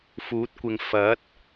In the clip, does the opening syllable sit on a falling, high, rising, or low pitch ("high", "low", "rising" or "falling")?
rising